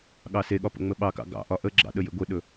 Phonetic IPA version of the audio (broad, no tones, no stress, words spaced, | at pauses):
ɠɑseɠɒ pə̰ŋ͡məɓɑkɑ̰ ɡɑ̰ʔɒ ʔəɡ͡ǁɑ̰ ɗəjḛɡʷeɗɵ